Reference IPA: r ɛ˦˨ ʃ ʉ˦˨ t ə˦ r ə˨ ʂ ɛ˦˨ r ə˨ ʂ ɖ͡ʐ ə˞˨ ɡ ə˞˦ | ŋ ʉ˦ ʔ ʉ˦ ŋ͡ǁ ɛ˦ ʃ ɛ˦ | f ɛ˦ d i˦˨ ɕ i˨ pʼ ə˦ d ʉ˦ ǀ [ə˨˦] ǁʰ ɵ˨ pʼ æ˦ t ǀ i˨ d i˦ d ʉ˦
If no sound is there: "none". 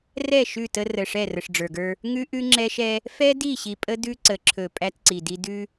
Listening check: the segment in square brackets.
ə˨˦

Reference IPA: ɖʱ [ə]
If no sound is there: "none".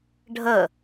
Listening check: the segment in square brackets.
ə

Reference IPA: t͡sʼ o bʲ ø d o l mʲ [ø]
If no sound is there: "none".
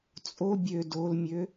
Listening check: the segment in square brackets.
ø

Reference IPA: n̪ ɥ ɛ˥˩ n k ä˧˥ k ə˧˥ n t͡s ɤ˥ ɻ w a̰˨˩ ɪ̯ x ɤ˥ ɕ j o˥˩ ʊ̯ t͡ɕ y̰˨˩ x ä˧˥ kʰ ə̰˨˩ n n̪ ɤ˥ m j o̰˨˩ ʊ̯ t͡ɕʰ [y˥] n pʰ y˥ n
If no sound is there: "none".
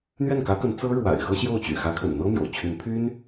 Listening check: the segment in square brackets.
y˧˥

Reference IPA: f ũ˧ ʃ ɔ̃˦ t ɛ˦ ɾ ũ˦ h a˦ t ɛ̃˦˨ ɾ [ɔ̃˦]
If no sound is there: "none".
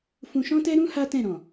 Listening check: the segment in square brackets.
ɔ̃˨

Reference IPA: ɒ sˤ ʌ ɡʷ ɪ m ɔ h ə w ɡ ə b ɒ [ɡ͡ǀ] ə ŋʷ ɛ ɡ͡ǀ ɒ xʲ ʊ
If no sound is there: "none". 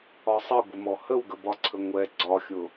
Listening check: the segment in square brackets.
ǀʰ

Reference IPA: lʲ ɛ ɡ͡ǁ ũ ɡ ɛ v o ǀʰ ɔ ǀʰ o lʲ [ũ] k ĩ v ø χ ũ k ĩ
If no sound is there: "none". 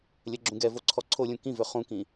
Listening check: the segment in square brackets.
ũ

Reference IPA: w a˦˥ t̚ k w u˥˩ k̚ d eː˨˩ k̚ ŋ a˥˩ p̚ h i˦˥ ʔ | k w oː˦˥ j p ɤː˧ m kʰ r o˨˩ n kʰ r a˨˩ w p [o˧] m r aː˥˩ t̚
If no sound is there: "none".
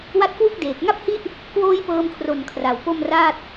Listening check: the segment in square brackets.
o˥˩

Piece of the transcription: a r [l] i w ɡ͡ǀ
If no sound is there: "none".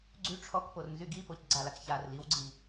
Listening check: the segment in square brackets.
l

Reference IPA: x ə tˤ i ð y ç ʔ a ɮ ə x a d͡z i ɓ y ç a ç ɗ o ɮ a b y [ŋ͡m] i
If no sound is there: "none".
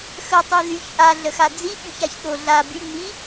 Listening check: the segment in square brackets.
ŋ͡m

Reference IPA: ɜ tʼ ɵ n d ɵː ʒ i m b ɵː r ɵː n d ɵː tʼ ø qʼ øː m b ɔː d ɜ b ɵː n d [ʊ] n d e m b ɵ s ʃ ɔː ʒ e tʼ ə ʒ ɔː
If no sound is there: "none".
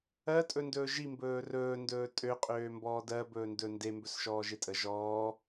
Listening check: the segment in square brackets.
ɵ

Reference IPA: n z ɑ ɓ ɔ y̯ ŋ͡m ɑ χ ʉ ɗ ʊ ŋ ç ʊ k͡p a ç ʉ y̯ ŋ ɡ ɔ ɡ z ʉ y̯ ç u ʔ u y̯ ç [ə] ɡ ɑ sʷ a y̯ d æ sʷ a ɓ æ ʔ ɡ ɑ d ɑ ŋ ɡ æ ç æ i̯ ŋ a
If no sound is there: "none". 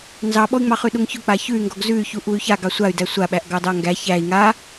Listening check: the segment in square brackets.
a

